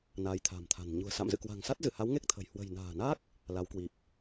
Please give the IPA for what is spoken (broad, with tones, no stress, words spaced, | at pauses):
na˨˦jt̪ʰa̤˨˩mt̪ʰa̤˨˩n ɲṳ˨˩ə̯sa̰˧˨mzɨ̰˧˨ kwa̤˨˩ŋsa˦˥t̚zɨ˧˩ha˨˦w ŋe˦˥k̚t̪ʰə̤˨˩j hwə̤˨˩jna̤ː˨˩na˦˥k̚ | la˨˦wkwi˨˩p̚